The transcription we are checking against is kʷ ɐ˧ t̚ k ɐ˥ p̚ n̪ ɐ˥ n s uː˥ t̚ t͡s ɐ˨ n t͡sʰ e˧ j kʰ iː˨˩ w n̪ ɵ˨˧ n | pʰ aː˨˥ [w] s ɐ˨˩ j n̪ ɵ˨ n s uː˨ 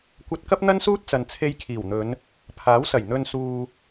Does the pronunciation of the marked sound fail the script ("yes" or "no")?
no